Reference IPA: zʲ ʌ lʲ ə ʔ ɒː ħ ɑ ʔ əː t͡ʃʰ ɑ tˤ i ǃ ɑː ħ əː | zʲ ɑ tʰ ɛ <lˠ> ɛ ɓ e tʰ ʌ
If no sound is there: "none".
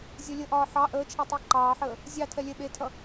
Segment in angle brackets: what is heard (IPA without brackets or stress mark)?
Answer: lʲ